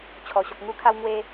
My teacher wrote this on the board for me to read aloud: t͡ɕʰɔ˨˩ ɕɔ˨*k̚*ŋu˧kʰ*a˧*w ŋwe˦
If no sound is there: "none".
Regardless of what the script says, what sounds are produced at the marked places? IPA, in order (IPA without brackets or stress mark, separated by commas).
k̚, a˧